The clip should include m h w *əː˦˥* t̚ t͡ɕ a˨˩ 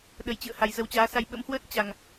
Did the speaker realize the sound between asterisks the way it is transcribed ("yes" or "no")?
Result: yes